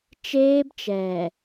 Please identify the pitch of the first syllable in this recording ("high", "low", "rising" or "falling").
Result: high